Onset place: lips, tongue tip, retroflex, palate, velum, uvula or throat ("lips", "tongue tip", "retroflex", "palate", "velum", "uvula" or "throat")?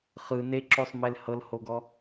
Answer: uvula